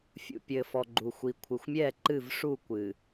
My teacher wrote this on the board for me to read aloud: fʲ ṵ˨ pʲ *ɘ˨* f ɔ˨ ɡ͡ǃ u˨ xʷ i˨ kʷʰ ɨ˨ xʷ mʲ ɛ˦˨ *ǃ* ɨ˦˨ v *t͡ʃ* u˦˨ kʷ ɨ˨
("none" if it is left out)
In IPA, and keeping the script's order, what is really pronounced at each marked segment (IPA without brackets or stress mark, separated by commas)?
ɘ˨, ǃ, ʂ